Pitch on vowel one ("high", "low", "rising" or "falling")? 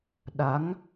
rising